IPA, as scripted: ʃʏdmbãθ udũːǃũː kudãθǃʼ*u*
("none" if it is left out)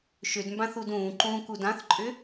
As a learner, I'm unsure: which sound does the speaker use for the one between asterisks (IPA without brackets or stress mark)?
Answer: ʏ